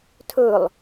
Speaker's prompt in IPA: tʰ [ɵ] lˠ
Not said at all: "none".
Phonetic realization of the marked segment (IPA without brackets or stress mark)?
ɵ